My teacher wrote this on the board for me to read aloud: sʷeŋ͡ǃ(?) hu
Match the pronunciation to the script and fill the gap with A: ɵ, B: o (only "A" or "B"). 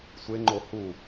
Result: B